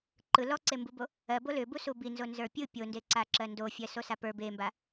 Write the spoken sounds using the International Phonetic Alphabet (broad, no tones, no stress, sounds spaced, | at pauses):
ǃ ɯ l ɔ ǀ e m b u b o | ɜ b o l ʏ b u s u b i n z o n z ə˞ pʲ ɯ pʲ o n d e ǀ a ǁ ɜ n d o fʲ ɜ s o s a p ə˞ b e m b a